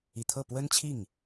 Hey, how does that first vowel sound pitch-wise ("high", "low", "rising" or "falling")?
low